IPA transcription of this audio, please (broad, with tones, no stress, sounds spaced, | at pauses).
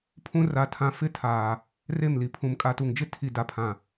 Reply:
pʰ ũ˦ r a˨ tʰ ã˨ f ɪ˦ tʰ aː˨ | r e˦˨ m l i˨ pʰ ũ˨ m kʼ a˨ t u˨ ŋ d͡ʒ ɪ˦ tʰ i˨ d a˨ pʰ ã˨